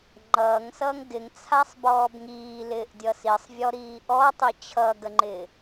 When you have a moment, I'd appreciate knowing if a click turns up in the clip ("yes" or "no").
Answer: yes